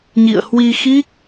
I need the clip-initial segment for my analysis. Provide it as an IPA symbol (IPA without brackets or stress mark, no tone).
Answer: ɲ